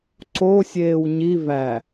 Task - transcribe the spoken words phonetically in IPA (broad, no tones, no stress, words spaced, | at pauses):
ǀo sʲeːwɲi væ